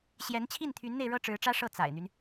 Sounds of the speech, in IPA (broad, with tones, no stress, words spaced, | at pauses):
ɕjɛ˧˥nt͡ɕʰi˥˩nt̪ʰy˧˥nn̪e˧ɪ̯ ɻɤ˥ʈ͡ʂɻ̩˧˥ʈ͡ʂä˥ ʂɤ˥˩ t͡sa̰˨˩ɪ̯n̪y˦n